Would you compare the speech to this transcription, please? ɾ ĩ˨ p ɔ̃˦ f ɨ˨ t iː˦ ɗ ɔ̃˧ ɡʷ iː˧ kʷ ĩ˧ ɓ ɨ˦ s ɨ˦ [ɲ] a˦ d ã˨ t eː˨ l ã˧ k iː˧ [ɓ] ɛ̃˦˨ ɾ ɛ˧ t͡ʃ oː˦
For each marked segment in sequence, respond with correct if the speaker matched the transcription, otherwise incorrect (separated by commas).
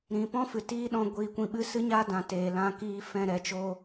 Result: correct, incorrect